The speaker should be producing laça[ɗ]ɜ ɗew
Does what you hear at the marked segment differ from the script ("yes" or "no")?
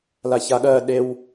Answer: yes